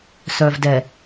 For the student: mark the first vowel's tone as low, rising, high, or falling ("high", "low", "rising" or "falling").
low